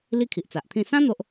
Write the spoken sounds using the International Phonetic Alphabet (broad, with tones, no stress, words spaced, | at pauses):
li˦ kʰi˨ʔt͡sa˨ʔt̪ʰĩ˥˧ sã˦ n̪o˦ʔ